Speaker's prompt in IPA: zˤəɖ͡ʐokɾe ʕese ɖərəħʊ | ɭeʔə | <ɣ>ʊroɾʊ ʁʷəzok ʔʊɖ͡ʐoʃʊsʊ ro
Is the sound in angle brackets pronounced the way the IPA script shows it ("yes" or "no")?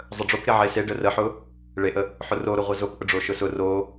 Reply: no